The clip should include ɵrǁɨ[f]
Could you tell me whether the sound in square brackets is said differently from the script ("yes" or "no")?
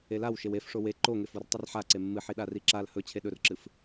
no